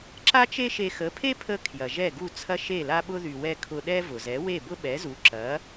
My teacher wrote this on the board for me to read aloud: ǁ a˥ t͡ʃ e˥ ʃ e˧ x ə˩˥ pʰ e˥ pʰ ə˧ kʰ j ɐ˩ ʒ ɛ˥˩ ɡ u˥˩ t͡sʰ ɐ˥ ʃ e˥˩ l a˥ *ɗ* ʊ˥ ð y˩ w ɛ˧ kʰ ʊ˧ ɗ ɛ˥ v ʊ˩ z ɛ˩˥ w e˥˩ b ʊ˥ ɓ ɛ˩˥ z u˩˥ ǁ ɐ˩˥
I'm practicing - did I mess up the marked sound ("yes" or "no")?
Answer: yes